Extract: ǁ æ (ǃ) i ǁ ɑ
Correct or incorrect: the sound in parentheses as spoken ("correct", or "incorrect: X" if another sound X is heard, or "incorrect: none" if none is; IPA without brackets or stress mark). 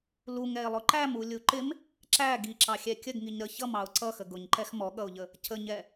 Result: incorrect: ɡ